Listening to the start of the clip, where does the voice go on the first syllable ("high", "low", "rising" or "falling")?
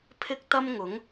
high